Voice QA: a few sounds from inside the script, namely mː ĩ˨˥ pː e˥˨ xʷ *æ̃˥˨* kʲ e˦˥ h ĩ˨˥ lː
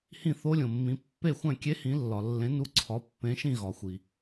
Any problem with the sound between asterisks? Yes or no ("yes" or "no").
no